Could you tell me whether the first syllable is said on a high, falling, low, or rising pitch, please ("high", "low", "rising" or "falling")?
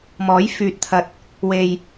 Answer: rising